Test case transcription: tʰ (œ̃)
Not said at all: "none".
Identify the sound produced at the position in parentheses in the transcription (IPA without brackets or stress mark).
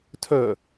œ